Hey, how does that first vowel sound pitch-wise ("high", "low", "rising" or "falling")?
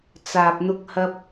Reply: low